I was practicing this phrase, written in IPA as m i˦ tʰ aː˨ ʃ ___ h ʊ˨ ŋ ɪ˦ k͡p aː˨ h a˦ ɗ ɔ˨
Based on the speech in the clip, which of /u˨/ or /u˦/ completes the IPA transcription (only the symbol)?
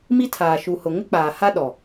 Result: u˨